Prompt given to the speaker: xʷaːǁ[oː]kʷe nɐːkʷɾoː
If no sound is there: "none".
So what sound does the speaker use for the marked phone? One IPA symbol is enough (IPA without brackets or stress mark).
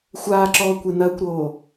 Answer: ɔː